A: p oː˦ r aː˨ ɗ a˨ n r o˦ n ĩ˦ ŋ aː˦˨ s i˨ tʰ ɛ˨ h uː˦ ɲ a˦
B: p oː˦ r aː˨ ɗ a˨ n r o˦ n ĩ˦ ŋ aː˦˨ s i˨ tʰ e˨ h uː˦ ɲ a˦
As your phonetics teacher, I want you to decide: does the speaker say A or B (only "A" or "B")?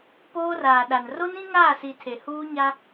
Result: B